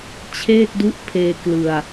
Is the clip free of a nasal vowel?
yes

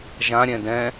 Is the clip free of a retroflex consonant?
yes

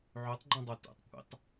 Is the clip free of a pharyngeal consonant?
no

